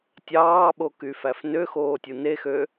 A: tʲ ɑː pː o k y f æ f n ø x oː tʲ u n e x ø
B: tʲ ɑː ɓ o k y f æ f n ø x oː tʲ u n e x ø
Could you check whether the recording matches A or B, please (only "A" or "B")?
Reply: B